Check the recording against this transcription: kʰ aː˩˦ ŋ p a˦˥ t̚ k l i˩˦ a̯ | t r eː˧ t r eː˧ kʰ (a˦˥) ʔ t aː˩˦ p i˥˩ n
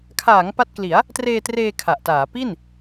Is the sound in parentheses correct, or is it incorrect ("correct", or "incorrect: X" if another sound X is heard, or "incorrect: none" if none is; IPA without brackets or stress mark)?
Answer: incorrect: a˨˩